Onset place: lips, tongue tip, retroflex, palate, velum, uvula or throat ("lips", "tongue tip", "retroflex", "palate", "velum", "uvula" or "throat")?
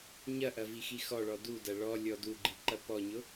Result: palate